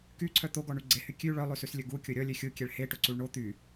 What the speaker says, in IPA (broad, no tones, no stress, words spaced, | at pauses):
kyǀʰœ t̪oɡɔɳy ɡ͡ǀehy kʲʉ ɭœlˠʉsʉslʲɵ ɡukʲo ɾʲɔlʲø xʲukʲɛɭ heʈoǀuɭ ɳo t̪y